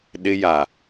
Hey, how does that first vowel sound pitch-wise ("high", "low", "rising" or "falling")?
high